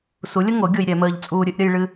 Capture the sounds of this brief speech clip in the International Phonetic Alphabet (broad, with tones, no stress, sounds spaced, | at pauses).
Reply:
s u˨˦ lʲ ə˦ ŋ o˨˦ ɡʲ o˦ j ɾʲ ɛ˨˦ m əː˦ ʎ t͡sʼ uː˦ ɾʲ ɨ˨˦ ʔ ɾʲ ə˦ j ɭ ɨ˦